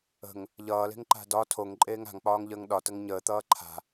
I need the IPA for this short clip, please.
ə̤ ŋ | ʎ ʌː l e̤ ŋ ǃ a̤ d ɒ tʰ o ŋ ǃʼ eː ŋ a̤ ŋ k͡p ɒː ŋ ʎ əː ŋ ɗ ɒ t ə ŋ ɲ əː t̪ ʌː ǃʰ a̤

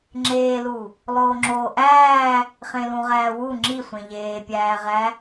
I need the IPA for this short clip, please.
ŋ͡ǁ eː l u | lˠ oː ŋ͡ǁ oː ʔ æː | χ ẽ l ũ ʁ æː w u ŋ͡ǁ i sʷ ẽ ʎ eː pʲ æː ʁ æ

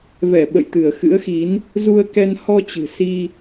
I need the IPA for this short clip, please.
v ɛ˧˩ ɓ ə̰˧˨ j t̪ ɨ˧˩ ə̯ x ɨ̰˧˥ ə̯ x i˨˦ n | z u˧ ə̯ k ɛ˧ n h ɔ˧ t͡ɕ ɨ̤˨˩ s i˧

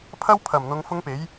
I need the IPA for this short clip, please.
pʰ ɐ˥ w pʰ ɐ˨˩ m n̪ ʊ˨˧ ŋ f ʊ˥ ŋ p e˨˥ j

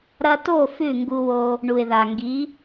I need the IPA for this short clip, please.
ɾ ɐ˧ t o˦˨ f ʉ˦˨ ŋ ɡ u˧ w o˧ | ɳ u˨ ɪ̯ ð a˨ ŋ ɡ i˨˦

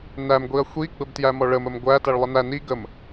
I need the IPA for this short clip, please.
n æ m ɡʷ i ɐ̯ xʷ i ɡ͡b ə b t j æ m ɔ ɭ ə m ə m ɡʷ æ t æ ɭ lˠ ə n æ n i ɡ ə m

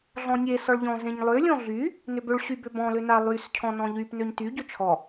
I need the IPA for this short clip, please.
ɮ ɔ̃ nʲ e s ɔ ɭ ʎ ɔ̃ z ẽ ɲ lˠ ø lʲ ɔ̃ ɮ y | n ʏ b ʏ ɭ ɕ y b ʏ b ɔ̃ l ʏ n a lˠ y s cʰ ɔ̃ n ɔ̃ ʎ y p n ø ɲ t y ɟ ʏ t͡ʃʰ ɔ

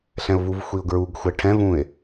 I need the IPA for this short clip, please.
ɬ ɛ̃ ʊ̯ v u v xʷ i ʊ̯ ɡ ɹ u ɡ xʷ ɛ ʈʰ ɛ̃ v ũː ɪ̯

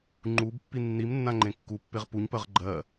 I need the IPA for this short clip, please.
ŋ͡ǃ u b pː i nː i m nː ã ŋ͡ǃ ẽ kː u pː e ʁ p u ɲ p ɜ ʁ ɡ͡ǃ ɜ

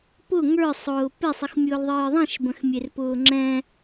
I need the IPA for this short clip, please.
p ʊ ŋ ə˞ sˤ ʊː p e sˤ i x mʲ ʊː l ðˤ ɨː ðˤ ĩ ʃ b ə̃ x mʲ e r p ʊː ŋ͡ǁ ɛ̃

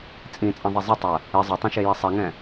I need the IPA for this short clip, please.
t͡sʼ ĩ t͡sʼ ɐ̃ ðˤ e zˤ ɪ tˤ ɐ | ɪ zˤ ɐ tˤ ɛ̃ ʃ e j e sˤ i ŋ ɛ̃

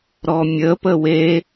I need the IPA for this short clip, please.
ɾ ɔ mʲ ə p ə w e

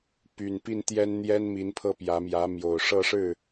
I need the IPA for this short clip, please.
p y˨˩ n p i˥˩ n t̪ j ɛ˥ n n̪ j ɛ˥ n m i˧˥ n pʰ ɤ˥˩ p j ä˧˥ m j ä˧˥ m j o˨˩ ʊ̯ ʂ ɤ˥˧ ʂ ɻ̩˥˩

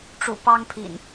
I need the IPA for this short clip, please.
ʈ͡ʂ ṵ˨˩ p ɑ˦ ŋ pʰ ḭ˨˩ n

